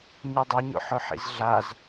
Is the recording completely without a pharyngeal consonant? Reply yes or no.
no